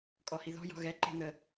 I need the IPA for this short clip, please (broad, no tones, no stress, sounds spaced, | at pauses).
kʼ ɔ h i ð ɔ̤ j ɔ̤ ɣ ɛ ǃ e̤ n̪ ə